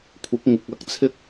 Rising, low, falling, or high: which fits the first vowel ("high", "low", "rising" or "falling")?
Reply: rising